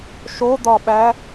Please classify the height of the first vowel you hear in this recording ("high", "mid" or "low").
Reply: mid